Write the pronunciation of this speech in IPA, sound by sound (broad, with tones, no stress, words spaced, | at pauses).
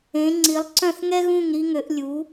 ẽ˩˥ŋ͡ǀi˩˥lˠ ǀœ̃˥˩θŋɛ˥ɣũ˥˩ŋ ɾi˥ŋø˩˥ʔ lʲu˩˥